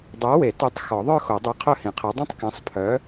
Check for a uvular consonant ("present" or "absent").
present